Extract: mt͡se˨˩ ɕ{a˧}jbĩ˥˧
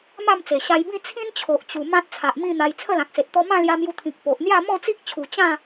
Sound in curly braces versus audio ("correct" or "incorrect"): correct